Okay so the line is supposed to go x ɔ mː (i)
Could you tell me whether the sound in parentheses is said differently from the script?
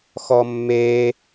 yes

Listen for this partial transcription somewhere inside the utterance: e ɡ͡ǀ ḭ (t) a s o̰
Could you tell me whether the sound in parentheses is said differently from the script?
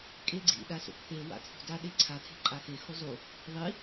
yes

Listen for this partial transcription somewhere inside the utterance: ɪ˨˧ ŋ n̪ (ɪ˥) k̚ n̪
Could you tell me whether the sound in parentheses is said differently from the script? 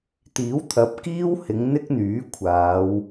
no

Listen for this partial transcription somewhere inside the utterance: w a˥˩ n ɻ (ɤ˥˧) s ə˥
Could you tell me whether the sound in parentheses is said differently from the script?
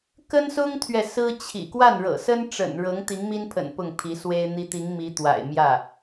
yes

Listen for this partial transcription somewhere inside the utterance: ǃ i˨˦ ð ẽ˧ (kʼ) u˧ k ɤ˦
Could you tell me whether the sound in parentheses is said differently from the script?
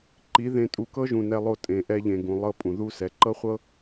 yes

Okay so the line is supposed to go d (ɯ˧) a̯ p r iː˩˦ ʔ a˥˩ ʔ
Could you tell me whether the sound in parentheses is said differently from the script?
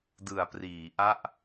yes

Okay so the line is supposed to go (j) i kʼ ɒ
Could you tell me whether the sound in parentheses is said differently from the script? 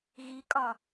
yes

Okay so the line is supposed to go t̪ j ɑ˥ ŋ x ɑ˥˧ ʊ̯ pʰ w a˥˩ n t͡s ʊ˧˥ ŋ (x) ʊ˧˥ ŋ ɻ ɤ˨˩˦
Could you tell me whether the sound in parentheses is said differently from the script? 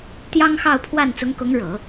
yes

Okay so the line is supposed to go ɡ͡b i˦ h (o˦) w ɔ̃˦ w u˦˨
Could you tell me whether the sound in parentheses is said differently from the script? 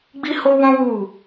no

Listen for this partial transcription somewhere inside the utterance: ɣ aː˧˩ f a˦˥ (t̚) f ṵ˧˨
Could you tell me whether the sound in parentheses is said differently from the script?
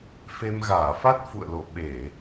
no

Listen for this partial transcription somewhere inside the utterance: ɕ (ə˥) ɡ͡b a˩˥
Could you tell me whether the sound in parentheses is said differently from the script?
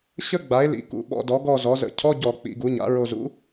no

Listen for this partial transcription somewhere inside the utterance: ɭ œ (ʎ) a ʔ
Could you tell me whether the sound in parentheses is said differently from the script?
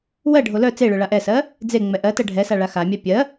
yes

